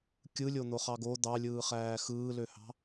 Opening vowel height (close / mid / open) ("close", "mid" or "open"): close